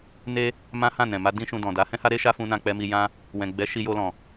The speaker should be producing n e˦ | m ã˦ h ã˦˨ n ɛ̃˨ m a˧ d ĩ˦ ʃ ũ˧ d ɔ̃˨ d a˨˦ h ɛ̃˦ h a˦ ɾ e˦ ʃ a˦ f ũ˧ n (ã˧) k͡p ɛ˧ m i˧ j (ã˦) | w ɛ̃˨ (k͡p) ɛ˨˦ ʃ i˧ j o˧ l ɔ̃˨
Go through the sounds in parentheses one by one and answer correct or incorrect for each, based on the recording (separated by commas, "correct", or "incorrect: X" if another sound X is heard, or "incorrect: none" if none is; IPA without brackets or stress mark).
correct, correct, incorrect: ɡ͡b